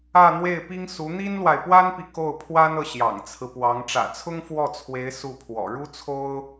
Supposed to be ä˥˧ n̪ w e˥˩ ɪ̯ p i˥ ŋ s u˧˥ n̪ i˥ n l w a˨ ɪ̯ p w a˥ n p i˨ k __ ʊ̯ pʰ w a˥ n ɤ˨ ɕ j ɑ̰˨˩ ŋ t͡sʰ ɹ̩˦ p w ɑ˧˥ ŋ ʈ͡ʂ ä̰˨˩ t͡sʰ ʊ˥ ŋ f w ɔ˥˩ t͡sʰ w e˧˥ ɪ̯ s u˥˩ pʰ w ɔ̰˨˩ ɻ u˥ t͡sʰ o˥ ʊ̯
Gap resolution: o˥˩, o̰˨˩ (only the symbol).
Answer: o˥˩